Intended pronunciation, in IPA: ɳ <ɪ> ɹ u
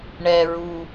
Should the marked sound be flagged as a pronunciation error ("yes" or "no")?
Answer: yes